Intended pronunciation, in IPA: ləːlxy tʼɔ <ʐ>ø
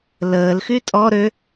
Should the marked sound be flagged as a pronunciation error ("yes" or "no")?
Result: yes